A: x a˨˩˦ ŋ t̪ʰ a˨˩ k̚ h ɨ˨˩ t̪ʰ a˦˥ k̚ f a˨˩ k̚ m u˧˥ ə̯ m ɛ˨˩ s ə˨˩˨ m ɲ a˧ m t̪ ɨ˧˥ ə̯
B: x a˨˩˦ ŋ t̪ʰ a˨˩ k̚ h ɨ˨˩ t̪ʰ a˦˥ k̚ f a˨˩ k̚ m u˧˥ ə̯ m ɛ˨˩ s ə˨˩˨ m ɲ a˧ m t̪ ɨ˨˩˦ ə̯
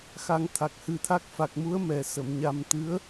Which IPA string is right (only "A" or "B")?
A